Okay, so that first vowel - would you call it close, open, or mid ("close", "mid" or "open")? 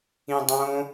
close